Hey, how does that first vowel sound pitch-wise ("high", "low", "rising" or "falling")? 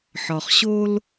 low